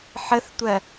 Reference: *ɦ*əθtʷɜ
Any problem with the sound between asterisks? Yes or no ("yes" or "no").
yes